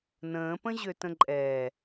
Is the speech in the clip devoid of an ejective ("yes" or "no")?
no